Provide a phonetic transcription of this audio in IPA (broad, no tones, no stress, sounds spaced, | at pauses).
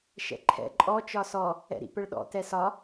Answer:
ʃ ɛ̰ ǃʰ ɛ̰ ǃʼ ɔ t͡ʃ ɒ s ɔ | ɛ̰ ɾ ḭ p ə ɭ ɗ ɔ̰ t ɛ s ɒ